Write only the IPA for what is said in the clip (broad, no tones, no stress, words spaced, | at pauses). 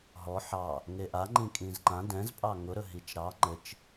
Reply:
ɦɔ ħɑ | ŋeʔaŋ͡ǃĩ kʼĩzǃã dɛ̃zpʼɑ ŋʊɾɵɦit͡ʃ ɾɑ ŋ͡ǃɘt͡ʃ